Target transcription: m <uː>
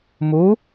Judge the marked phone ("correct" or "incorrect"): correct